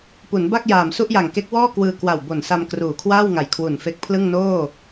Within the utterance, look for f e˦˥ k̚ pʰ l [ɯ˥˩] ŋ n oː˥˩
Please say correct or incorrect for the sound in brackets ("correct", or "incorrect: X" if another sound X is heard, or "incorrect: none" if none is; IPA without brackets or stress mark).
correct